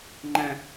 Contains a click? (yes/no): yes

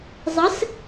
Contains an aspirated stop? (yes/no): no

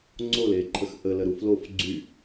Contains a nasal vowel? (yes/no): no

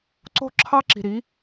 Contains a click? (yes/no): yes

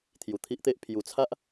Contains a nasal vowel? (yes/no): no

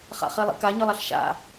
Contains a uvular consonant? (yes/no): yes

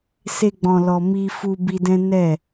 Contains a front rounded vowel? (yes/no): no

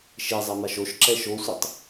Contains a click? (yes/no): yes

